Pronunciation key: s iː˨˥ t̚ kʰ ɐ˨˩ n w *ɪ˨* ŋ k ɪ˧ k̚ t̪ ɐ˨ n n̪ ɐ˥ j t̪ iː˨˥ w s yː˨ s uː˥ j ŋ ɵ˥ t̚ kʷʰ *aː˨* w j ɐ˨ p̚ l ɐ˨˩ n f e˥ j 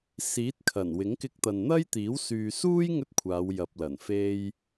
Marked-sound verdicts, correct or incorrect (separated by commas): incorrect, incorrect